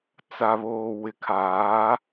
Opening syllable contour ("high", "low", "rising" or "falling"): low